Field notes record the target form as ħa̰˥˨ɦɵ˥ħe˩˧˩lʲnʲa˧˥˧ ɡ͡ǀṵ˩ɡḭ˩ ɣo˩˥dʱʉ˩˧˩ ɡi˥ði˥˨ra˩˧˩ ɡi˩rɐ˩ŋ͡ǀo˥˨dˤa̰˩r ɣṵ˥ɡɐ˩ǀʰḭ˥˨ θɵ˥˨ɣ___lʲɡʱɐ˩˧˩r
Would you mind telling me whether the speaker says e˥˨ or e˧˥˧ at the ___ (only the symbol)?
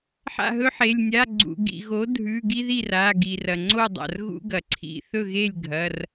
e˥˨